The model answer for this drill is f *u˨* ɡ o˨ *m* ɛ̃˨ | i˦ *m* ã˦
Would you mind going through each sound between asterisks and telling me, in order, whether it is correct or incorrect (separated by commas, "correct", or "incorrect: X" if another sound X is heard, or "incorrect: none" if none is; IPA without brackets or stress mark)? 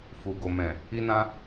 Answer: correct, correct, incorrect: n